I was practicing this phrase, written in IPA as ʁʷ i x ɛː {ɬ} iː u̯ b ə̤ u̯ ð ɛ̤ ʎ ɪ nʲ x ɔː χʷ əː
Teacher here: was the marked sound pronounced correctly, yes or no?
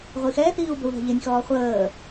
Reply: no